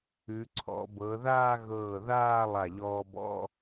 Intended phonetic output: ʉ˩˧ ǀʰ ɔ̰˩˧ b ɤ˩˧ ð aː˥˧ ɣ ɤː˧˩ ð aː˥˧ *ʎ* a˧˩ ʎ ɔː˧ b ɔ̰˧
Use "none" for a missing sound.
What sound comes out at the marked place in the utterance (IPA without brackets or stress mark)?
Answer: lˠ